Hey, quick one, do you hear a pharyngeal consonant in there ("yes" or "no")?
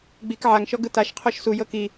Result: yes